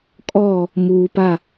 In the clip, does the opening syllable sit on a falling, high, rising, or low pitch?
falling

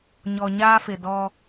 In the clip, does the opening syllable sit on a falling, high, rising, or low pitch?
low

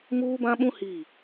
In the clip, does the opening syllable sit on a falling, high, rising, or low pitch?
high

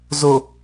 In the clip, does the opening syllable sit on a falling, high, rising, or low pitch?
low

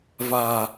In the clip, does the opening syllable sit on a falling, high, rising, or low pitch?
low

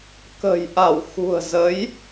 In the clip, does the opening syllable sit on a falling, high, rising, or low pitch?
low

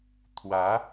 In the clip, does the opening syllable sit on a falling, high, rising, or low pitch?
rising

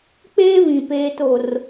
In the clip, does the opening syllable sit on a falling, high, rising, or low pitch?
high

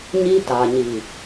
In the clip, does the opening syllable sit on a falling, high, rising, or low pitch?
high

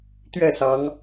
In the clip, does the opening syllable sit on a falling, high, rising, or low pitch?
falling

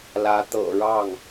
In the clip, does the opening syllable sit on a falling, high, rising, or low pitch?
rising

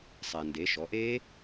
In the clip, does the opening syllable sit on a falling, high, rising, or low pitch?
low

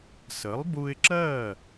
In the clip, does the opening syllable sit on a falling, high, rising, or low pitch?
rising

